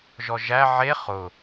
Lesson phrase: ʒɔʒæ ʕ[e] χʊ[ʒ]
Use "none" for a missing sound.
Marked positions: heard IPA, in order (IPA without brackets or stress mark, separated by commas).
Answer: e, none